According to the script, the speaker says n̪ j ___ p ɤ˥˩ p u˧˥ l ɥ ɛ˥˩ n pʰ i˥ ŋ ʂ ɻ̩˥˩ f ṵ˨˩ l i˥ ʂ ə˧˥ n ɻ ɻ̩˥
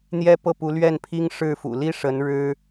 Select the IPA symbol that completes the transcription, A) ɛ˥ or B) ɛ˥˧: A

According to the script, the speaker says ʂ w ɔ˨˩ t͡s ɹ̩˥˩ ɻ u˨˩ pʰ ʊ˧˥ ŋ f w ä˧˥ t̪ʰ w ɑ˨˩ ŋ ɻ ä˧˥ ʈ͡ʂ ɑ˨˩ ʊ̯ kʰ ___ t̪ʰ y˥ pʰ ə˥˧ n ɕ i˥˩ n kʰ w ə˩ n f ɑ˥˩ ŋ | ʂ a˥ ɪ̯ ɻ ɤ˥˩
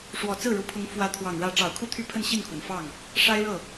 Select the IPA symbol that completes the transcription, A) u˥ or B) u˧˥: A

